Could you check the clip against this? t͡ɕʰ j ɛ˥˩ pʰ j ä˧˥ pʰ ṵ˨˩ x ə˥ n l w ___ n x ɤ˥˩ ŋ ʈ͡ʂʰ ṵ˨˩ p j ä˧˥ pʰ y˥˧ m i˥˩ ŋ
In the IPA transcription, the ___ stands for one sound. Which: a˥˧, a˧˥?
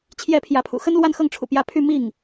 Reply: a˥˧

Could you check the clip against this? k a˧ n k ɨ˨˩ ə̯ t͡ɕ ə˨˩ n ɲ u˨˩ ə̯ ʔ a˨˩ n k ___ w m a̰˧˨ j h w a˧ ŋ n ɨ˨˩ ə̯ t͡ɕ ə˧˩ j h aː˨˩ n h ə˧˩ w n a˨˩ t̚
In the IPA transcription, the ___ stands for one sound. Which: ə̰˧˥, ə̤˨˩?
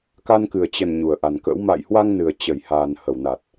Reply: ə̰˧˥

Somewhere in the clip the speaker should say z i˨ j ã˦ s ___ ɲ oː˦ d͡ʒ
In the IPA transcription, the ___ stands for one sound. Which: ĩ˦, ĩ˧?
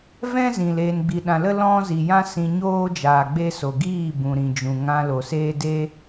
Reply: ĩ˧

